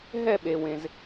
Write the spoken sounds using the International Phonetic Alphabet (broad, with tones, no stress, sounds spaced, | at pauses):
ɦ ɛ˥˨ ɓ e˩ w ẽ˩ z